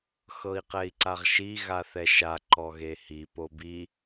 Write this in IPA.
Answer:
x ɤ i̯ q ɛ i̯ ǀ a ʁ ʃ i ɣ a θ ɛ ʃ a ǃ ɔ ɣ e h i p o b i

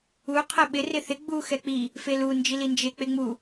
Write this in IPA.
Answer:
u qʰ ɛ ɓ ɪ r ɪ θ ɪ ɡ͡b u x ɛ k͡p i | f e l u n d͡ʒ i l i n d͡ʒ e k͡p e ŋ͡m u

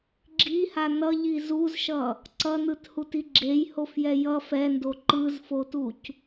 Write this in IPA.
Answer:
ɡ͡ǁ i h a n ʌ ʎ i z u z ʃ ʌ | ǀ ʌ n ɯ t h u t i ɡ͡ǁ e j h o f j ɛ j ʌ f ɛ n d o ǃ ɯ z f o t u c

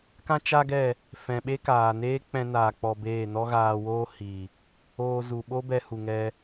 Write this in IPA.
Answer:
k ã˦ t͡ʃ a˦ ɡ ɛ˦˨ | f ɛ̃˨ ɓ e˦ k aː˨ n eː˦ k͡p ɛ̃˧ n aː˨ k͡p ɔ˧ b eː˦˨ n ɔ˦ ɣ aː˧ w oː˦ h i˨ | oː˧ z u˨ ɓ o˦ b ɛ˧ h u˨ ŋ ɛ˧

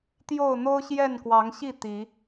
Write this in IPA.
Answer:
t̪ j o˥˨ ʊ̯ n̪ o˦ ʊ̯ ɕ j ɛ˥˨ n k w ɑ˨˦ ŋ ɕ i˥˨ t̪ i˨˦

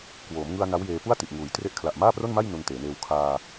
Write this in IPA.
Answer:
k w oː˩˦ m ŋ ɯ˧ a̯ n a˦˥ w j eː˧ p u˥˩ a̯ t i˨˩ ʔ ŋ uː˩˦ j t r e˦˥ ʔ kʰ l a˨˩ ʔ m aː˥˩ p r o˥˩ n m a˥˩ j n u˧ n t eː˩˦ n eː˧ w kʰ aː˧

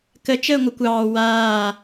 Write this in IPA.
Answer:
k ə t͡ʃ əː ŋʷ ə kʷ ɑː w aː

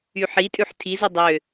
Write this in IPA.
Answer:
y ħ i tʼ ʉ ħ tʰ i z u dˤ ø

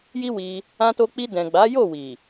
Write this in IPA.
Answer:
j i˦ w i˧ | ã˧ t o˧ k͡p i˧ d ɛ̃˨ ɡ͡b a˨˦ j o˦˨ w i˨

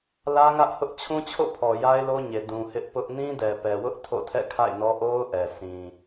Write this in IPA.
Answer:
l ä˦ ŋ ä˦ ʔ h ʊ˦ ʔ t͡ɕʰ ũ˦ t͡ɕʰ o̰˦˨ pʰ ɔ˨ j a˦ ɪ̯ l o˦ ɲ e˨ d ũ˨ h ɪ˦ ʔ p ʊ˦ ʔ n ĩ˦ d ɛ˨ p ɛ˨ w ʊ˦ ʔ tʰ o̰˦˨ tʰ ɛ̰˦˨ kʰ a̰˦˨ ɪ̯ n ɔ˦ ʔ o˦ ʊ̯ ʔ ɛ˨ sʰ ĩ˨

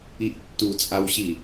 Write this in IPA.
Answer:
i ʔ tː u t͡sʼ a w ɕ i

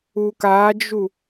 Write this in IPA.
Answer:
u k a d͡ʒ u

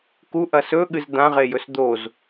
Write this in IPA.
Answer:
k u ʔ ɐ s ɵ ɠ ɨ z d̪ ã ʁ e j ɵ s d̪ o z

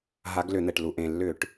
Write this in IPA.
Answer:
ɦ a˨˦ ɡ l ʏ˧˩˧ n̪ ɛ˩ ʈ l u˩ ʔ ẽ˩ lː ʏ˧˩˧ ʈ

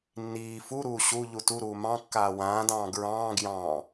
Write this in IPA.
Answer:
nː iː f u ɾ uː ɕ u ʎ u t u ɾ uː m ɑ̃ kː aː w ãː d ɑ̃ː ɡ ɹ ɑ̃ː ɡ j ɑ̃ː

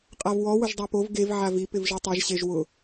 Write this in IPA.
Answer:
qʼ a v w ɔ w ʊ ʒ dˤ a p o v ɡ e v ʕ a v i p ɪ v ʒ i tˤ ɛ ʒ ɕ e ʒ w ʊ

